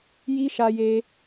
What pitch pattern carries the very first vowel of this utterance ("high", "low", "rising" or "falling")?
high